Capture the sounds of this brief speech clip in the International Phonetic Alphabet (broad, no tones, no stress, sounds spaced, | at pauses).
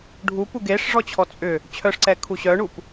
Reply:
ɖʱ u p u ɡ e ʂ ʐ ɔ t͡ɕʰ ɔ t͡sʼ ʏ | t͡ɕʰ œ ʂ ǀ ɛ kʰ u ɕ œ ɳ u p